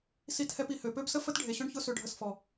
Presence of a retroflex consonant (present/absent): present